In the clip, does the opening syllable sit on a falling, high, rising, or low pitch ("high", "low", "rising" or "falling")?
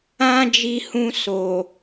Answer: high